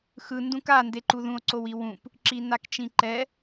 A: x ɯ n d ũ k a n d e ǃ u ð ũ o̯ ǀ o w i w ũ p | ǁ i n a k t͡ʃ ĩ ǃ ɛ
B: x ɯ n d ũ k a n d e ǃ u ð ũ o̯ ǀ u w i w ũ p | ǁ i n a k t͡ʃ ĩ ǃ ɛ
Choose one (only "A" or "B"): A